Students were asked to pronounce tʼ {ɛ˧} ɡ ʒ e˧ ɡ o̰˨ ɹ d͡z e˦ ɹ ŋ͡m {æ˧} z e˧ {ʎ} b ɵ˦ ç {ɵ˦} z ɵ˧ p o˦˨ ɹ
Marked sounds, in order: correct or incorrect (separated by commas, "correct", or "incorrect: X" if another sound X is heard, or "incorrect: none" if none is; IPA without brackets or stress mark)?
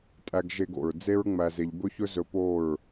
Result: incorrect: æ˧, correct, correct, correct